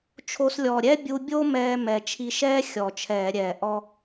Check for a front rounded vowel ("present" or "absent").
absent